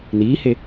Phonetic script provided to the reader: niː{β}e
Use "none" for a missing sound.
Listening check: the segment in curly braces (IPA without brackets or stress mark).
h